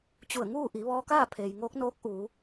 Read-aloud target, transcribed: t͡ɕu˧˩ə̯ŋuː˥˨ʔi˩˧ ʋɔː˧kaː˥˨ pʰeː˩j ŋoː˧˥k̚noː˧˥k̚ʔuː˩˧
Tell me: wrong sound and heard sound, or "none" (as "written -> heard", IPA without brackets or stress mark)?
none